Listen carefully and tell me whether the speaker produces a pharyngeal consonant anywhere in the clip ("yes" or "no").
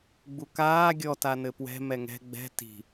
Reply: no